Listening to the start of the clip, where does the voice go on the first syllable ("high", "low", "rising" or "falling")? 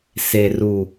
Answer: low